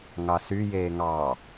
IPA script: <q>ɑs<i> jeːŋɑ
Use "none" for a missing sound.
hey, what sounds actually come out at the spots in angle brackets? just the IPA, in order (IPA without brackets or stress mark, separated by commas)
ŋ, y